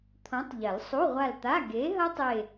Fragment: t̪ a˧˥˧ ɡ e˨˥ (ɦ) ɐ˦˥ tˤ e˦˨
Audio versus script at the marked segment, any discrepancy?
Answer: no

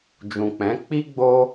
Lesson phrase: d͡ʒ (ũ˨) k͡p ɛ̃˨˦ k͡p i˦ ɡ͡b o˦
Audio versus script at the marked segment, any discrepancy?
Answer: no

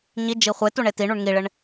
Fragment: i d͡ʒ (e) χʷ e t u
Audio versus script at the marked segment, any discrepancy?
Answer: yes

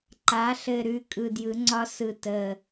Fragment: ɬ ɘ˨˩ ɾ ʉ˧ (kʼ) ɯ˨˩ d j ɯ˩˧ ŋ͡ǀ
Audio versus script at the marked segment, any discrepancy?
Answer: no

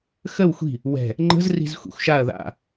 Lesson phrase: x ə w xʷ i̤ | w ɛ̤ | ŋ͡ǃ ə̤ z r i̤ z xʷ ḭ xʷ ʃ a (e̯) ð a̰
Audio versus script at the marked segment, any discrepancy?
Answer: yes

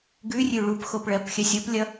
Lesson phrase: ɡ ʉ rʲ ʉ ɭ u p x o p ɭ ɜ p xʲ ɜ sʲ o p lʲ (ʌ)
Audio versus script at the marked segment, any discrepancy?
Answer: no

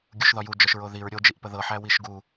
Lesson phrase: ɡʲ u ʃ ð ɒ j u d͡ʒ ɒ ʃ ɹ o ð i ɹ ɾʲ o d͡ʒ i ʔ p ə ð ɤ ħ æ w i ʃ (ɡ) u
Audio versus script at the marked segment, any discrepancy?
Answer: no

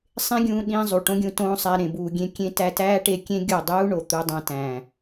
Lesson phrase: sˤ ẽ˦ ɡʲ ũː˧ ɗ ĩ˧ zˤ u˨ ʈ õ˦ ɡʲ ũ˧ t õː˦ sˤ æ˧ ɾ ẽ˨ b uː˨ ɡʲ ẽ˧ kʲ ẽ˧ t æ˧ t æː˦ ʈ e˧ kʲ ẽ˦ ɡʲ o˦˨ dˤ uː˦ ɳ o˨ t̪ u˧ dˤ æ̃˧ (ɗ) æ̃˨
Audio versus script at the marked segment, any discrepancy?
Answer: yes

